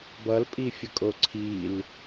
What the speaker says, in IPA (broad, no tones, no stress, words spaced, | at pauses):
bʌlpʼifʲəkʼo ǀʰil